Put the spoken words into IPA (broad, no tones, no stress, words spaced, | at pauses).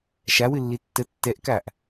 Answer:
ʃawɨlːi tːə tːɛʔkaʔ